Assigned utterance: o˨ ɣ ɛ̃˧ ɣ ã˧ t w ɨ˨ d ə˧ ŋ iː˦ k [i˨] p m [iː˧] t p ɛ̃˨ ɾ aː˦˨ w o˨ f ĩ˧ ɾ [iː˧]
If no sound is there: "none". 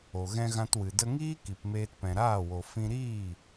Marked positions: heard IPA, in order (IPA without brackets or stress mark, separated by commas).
i˨, eː˧, iː˦˨